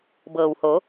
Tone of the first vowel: low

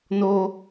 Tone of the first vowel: high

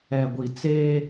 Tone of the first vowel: low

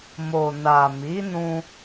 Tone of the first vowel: low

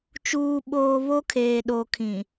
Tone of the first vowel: low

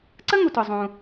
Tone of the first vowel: high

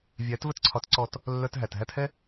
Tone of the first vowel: rising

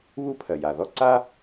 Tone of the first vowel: high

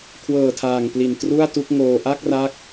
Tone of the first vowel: low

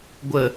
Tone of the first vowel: low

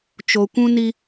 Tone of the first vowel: low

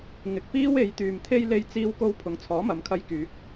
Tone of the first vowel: low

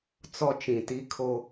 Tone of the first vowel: high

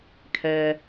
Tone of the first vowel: low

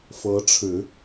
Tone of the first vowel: rising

